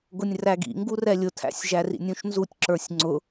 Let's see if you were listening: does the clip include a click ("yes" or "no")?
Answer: yes